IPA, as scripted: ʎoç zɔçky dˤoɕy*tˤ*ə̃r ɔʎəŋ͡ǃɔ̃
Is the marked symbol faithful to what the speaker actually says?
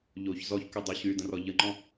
no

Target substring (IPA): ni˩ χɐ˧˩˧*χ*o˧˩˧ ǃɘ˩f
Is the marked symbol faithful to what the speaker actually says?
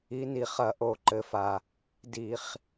no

